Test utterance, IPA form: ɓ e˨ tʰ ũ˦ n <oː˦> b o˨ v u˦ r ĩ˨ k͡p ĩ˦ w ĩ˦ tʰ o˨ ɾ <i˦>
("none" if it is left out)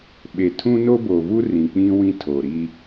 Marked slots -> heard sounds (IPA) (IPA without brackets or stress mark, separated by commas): o˦, i˦